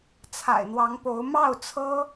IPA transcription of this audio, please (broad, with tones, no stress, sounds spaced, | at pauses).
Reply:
t͡sʰ a̰˨˩ ɪ̯ n̪ w ɑ˧˥ ŋ p o˧˥ ʊ̯ m ɑ˥˩ ʊ̯ t͡sʰ ɤ˥